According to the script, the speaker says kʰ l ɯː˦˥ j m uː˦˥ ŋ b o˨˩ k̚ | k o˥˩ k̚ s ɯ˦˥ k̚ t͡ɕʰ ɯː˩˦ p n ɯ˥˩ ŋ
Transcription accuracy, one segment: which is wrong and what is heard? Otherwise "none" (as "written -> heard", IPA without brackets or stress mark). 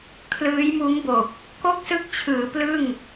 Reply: n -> l